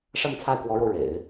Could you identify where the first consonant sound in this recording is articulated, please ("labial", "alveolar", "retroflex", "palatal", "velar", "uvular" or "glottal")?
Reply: retroflex